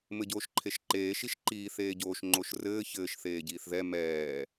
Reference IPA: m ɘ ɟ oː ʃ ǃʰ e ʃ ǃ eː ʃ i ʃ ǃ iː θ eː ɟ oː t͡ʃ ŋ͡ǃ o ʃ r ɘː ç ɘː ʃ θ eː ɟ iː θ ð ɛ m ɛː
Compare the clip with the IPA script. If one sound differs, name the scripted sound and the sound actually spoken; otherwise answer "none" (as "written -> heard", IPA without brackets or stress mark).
t͡ʃ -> ʃ